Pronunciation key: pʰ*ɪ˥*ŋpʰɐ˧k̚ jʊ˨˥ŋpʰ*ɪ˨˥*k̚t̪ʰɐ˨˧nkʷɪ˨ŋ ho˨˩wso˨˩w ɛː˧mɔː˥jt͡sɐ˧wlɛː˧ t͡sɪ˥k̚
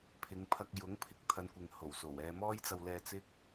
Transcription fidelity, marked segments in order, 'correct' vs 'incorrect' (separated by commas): incorrect, correct